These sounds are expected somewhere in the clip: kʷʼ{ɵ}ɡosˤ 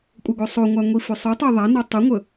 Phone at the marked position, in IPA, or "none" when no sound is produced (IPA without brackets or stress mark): ɤ